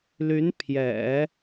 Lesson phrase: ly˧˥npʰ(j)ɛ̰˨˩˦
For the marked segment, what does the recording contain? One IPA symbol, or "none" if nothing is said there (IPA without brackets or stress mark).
j